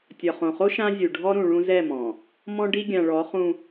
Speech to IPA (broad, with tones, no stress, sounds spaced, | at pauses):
tʲ ɒ˨ χ õ˨ χ o˦ ʃ ã˦ zʲ u˨ ɖʱ ɔ˦ ɾ ũ˨ ɭ ũ˦ z ɛ˦˨ m ɔ̃˨ | m ɔ̃˦ ɖ i˦ ɡʲ ã˨ ɭ ɔ˨˦ χ ũ˦